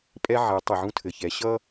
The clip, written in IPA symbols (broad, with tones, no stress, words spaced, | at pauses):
pʼɛ˧ ʕɛ˩˧tˤɘ˩ ʕũ˧tʰɘ˩çɛ˩˧ ɕʌ˥